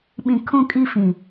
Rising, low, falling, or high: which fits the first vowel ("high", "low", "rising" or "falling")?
high